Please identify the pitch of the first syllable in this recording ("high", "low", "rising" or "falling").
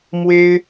high